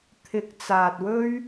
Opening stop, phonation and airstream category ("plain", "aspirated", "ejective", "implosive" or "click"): aspirated